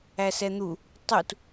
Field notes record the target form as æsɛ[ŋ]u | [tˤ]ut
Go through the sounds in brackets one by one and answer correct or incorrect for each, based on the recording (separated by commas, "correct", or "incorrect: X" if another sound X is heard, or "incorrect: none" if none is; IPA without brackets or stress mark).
incorrect: n̪, correct